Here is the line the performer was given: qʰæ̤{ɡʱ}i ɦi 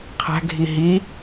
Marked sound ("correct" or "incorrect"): correct